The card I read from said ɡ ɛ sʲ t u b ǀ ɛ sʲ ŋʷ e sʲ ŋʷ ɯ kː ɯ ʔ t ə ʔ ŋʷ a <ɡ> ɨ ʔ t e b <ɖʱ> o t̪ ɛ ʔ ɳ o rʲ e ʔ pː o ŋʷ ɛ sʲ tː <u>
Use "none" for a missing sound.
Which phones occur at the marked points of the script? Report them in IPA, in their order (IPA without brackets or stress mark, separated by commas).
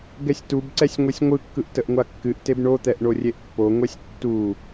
kː, ɳ, u